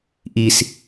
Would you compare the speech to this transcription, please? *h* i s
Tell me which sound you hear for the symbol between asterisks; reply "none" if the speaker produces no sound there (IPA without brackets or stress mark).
ʔ